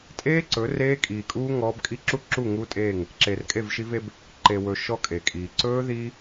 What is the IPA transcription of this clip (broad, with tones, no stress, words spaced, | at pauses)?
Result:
tʼeː˦ǀɵ˨˦ reː˦ kʼiː˨kʼuː˦ ŋɔː˦b kʼi˦ǁu˦ǁu˦˨ ŋu˦tʼeː˦˨ŋ | ǁe˨rkʼe˦˨vʃi˦ve˦b | ǃe˨wɵ˨ ʃɔ˦kʼe˨kʼiː˨ ǀɵː˦ðiː˦